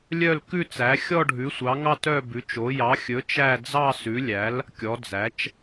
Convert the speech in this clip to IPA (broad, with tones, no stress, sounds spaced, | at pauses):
lʲ œ˥˧ l k ʉ˥˧ t͡s æ˨˥ xʲ ɔ˥˧ ɖʱ ʉ˨˥ sʷ ɑ˨˥ ŋ ɑ˥˧ t œ˥˧ b ʉ˨˥ t͡ʃ o˨˥ j ɑ˨˥ xʲ ɵ˨˥ t͡ʃ æ˥˧ d͡z ɑ˥˧ s ʉ˨˥ lʲ æ˨˥ l | kʲ ɔ˨˥ d͡z æ˨˥ t͡ʃ